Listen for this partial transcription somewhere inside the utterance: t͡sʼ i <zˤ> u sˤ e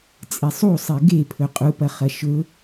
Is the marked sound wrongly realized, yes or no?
yes